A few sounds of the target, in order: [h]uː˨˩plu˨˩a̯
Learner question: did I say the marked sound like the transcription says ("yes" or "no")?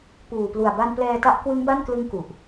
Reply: no